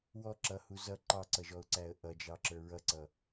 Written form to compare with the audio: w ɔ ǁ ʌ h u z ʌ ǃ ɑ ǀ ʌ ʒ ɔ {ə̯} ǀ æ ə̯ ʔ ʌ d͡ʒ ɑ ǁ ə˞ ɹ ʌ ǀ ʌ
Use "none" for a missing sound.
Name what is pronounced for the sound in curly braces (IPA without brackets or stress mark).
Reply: ʊ̯